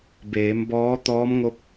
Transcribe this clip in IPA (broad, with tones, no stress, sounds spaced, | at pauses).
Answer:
b eː˩˧ m b ɔː˧˥ t̪ ɔː˧˥ m ŋ o˧˥ p̚